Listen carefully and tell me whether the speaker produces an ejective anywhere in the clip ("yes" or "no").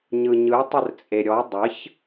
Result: yes